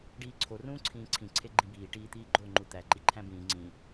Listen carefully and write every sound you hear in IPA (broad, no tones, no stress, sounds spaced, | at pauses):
ɖ iː ǀʰ o r ũː ǀʰ ĩː ǀʰ ĩ ǀʰ e ɡ͡ǃ ĩ b iː ʈ iː t̪ iː ɡ͡ǃ o ŋ͡ǃ u t̪ æ ǃ i ǃʰ æ̃ b ĩː ŋ͡ǀ ĩ